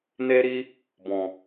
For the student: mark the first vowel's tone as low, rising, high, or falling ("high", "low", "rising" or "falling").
high